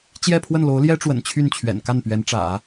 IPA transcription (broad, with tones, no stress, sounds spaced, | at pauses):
t͡ɕ j ɛ˥˧ pʰ w ə˥˩ n l o˧˥ ʊ̯ l j ɛ˥ ʈ͡ʂ w ə̰˨˩ n t͡ɕʰ y˥˩ n t͡ɕʰ ɥ ɛ̰˨˩ n k a˥˩ n p ɥ ɛ˧˥ n ʈ͡ʂ ä̰˨˩˦